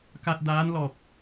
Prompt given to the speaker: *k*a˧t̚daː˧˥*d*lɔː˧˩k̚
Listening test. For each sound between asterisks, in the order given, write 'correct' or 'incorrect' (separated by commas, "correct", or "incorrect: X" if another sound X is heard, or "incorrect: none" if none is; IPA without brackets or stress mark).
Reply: correct, incorrect: n